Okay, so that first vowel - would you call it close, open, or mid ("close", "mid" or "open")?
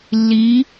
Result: close